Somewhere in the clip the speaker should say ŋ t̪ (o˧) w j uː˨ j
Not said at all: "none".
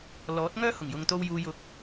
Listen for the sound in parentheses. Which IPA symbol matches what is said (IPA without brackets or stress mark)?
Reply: o˧